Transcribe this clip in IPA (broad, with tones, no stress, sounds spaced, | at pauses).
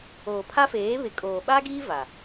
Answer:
oː˨ pʰ a˦ f eː˨˦ β ɪ˨ kʼ oː˨ ɓ a˦ ɡ iː˦ v a˨